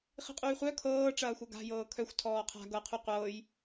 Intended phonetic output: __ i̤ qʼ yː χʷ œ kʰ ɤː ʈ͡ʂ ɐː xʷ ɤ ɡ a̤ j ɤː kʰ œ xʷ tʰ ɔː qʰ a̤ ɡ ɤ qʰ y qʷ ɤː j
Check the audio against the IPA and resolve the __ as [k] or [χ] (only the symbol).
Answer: χ